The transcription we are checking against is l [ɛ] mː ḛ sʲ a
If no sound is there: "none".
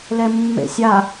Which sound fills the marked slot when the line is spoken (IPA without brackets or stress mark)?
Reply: ɛ